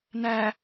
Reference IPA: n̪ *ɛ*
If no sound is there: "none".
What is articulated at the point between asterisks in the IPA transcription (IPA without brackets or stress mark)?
æ